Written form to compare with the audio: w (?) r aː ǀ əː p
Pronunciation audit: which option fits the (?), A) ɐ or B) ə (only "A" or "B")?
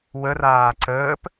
B